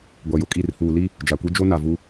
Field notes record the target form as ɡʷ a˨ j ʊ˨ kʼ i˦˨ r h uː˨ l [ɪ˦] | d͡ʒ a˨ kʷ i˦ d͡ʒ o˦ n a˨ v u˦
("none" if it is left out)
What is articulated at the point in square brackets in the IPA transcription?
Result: i˦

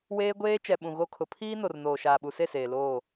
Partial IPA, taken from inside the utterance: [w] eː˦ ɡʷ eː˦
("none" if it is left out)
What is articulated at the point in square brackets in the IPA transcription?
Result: w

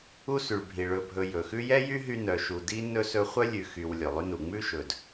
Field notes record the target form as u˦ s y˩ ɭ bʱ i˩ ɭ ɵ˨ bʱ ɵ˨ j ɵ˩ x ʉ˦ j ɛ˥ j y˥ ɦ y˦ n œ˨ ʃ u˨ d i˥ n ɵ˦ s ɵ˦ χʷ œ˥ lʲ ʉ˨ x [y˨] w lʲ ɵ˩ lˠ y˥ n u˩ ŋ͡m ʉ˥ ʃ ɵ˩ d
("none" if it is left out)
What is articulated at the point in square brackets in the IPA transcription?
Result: y˨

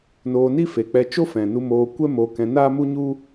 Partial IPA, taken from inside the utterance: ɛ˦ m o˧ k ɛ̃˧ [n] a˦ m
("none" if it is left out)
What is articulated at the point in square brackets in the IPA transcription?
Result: n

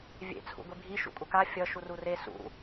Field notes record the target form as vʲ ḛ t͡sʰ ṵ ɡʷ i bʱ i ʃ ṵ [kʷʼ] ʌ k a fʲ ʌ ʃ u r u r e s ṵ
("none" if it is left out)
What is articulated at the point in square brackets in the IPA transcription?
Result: kʷʼ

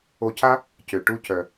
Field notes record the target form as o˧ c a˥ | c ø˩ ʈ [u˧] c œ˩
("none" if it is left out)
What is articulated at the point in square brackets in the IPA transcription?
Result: u˥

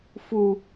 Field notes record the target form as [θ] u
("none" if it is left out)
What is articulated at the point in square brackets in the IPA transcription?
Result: f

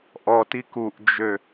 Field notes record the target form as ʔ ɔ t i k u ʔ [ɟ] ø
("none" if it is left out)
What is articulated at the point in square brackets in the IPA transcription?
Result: d͡ʒ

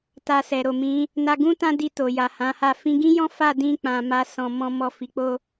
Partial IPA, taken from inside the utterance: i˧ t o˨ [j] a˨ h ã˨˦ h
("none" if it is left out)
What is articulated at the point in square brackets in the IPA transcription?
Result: j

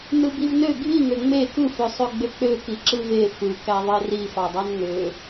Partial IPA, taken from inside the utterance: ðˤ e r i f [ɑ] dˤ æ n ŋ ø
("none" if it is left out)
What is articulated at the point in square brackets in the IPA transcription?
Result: ɑ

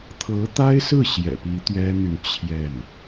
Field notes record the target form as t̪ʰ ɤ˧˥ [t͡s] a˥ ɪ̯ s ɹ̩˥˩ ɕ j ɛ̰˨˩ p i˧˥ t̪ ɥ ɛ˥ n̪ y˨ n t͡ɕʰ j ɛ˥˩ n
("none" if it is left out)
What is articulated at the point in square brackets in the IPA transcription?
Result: t̪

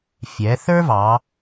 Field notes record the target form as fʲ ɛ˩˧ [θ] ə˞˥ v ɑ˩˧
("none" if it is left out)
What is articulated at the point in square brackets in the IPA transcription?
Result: θ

